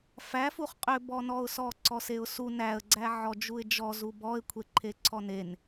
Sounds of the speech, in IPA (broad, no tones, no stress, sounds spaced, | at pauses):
f æ f u χ qʼ ʏ b ɔ n ɔ ʊ̯ s ɔ ǀ ɔ s e ʊ̯ s u n æ ə̯ ɡ͡ǀ æ ʕ ɔ d͡ʒ u ɪ̯ d͡ʒ ɔ z u b ɔ ɪ̯ kʷʰ e ǃʰ e ǀʰ ɔ n e n